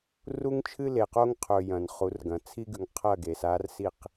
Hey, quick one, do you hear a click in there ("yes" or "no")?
no